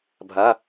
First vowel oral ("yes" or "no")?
yes